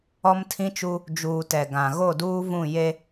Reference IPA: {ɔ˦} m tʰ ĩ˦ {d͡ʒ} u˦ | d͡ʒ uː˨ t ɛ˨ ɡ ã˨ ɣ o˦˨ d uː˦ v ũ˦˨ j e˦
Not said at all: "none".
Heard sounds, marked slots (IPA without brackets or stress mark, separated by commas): ɔ˦, t͡ʃ